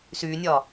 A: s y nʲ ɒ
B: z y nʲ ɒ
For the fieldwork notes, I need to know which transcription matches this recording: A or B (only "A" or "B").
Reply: A